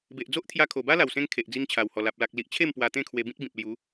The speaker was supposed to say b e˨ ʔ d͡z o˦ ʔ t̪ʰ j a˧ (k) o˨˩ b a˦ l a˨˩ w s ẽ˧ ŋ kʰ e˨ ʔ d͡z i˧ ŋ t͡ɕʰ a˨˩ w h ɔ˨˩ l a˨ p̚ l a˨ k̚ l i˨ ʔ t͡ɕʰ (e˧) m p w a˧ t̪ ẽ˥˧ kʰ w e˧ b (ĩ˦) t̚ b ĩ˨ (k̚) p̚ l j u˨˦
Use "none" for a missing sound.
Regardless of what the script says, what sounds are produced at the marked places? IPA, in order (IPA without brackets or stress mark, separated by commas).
kʰ, e˥˧, ĩ˦, none